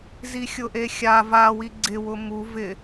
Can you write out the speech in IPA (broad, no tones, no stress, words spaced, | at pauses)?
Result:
zixʲʊʔexʲa va wiɡ͡ǀɪ wʊmu vɪ